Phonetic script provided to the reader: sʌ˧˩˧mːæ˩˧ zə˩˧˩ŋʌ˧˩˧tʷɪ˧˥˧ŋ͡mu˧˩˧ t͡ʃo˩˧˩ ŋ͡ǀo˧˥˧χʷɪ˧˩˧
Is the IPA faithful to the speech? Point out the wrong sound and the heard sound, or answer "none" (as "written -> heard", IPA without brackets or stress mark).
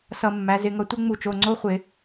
ə˩˧˩ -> ɪ˩˧˩